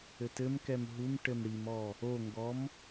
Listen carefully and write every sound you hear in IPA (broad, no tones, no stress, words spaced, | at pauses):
ɘtɘmkɛm ɦum ʈɘmɽimɔ | oŋɡɔm